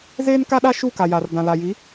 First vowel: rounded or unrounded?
unrounded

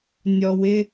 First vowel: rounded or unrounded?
rounded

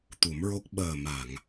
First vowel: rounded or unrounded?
rounded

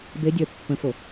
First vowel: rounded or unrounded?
unrounded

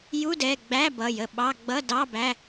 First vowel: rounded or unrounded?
rounded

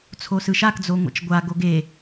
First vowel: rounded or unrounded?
rounded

